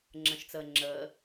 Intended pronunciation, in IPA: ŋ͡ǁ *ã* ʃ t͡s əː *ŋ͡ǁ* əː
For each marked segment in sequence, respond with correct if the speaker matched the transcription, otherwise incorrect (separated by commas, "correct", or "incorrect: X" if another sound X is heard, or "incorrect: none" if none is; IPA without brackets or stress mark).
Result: incorrect: ə̃, correct